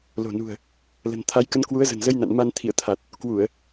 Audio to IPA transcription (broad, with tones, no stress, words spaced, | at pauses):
lo̤˨˩nṳ˨˩ə̯ | lə̤˨˩nt̪ʰa˨˦jkə˨˦n kwu˨˦ə̯zə̤˨˩nzə˧jna̰˧˨n ma˧n t̪ʰḭ˧˨ə̯t̪ʰa˨˩t̚ | kwu˧˩˨ə̯